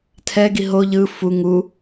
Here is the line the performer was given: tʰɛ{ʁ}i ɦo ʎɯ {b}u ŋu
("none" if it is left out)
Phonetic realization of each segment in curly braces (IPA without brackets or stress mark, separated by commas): ɡ, f